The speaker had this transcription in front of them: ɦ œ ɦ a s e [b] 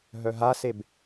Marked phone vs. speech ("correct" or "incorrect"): correct